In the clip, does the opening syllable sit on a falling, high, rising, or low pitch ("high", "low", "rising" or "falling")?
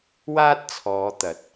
high